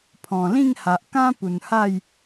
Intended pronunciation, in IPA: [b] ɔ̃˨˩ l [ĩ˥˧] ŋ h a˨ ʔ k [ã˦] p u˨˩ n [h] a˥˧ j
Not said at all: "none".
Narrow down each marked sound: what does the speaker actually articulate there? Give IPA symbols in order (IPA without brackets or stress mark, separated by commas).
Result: pʰ, ĩ˥˧, ã˦, h